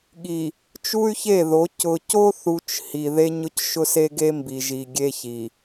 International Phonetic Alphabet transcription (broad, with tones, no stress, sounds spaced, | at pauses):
ɠ i˨ | t͡ʃ u˦ y̯ ç e˦˨ ð o˨˦ c ʊ˨ c o˦ θ u˨ t͡ʃ h i˨ ð e˦ ɲ ʊ˦ c ʃ ʊ˦ s e˦ ɡ e˦ m b i˨ ʒ i˨ ɡʲ e˦ ç i˨